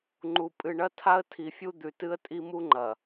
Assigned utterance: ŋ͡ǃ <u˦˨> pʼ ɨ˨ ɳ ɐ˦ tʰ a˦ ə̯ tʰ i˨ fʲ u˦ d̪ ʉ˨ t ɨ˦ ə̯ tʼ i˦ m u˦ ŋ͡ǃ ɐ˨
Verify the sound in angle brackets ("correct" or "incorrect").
incorrect